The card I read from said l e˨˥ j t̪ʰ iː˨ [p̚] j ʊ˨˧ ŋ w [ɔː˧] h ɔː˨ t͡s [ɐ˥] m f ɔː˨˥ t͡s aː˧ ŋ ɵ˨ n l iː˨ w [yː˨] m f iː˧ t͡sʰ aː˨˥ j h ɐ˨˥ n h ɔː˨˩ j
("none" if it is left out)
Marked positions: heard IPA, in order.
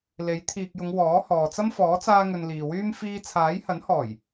k̚, ɔː˨˥, ɐ˥, yː˥

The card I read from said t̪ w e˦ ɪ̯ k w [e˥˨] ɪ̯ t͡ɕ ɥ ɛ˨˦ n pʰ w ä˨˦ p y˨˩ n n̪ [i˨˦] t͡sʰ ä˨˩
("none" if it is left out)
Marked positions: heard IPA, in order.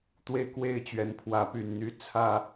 e˥˨, y˨˦

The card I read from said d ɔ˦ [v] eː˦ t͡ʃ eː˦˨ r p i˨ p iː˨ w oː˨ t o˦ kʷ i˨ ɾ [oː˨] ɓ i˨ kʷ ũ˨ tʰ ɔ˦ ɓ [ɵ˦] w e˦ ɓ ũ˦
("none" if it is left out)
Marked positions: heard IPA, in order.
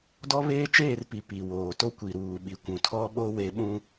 β, uː˨, o˦

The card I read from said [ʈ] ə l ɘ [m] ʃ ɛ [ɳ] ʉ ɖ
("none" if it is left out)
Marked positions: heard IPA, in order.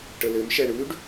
ʈ, m, ɳ

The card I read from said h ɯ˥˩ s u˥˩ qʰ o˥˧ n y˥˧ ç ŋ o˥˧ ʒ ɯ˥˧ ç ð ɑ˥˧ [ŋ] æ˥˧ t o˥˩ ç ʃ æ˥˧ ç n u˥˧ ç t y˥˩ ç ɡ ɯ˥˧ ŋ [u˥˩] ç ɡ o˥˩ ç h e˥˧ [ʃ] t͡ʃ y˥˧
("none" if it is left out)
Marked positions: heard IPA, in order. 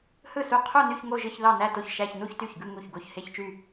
n, u˥˩, ç

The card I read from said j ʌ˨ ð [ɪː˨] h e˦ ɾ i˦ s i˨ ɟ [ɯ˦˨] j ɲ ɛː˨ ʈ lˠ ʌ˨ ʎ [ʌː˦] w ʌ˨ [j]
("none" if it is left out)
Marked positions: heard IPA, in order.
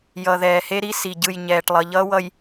ɛː˨, ɯ˦˨, ʌː˦, j

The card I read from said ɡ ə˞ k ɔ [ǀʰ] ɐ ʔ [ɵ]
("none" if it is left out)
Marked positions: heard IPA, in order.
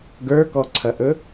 ǀʰ, ɵ

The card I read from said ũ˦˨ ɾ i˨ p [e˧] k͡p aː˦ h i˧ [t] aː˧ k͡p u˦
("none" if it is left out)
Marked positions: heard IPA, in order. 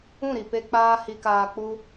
e˧, k

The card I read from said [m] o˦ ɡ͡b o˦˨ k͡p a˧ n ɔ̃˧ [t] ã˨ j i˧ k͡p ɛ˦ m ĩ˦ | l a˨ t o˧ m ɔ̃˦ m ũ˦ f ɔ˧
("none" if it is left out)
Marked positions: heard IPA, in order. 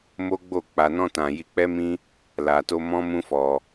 m, t

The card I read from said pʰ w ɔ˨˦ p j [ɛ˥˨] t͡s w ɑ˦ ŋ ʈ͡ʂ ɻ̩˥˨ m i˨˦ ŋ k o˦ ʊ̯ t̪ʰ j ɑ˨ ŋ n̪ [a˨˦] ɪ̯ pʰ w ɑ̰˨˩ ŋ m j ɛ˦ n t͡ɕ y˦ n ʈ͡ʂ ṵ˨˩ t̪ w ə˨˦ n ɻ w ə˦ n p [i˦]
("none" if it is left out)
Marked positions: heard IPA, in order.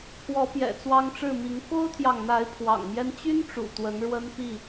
ɛ̰˨˩, a˨˦, i˥˨

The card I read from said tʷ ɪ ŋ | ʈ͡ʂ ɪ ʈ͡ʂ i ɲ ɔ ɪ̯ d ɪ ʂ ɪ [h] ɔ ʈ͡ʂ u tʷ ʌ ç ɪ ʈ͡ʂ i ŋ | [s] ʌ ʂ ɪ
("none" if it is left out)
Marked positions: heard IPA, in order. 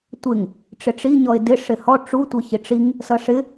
h, s

